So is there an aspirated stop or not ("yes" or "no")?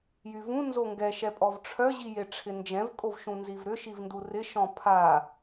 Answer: yes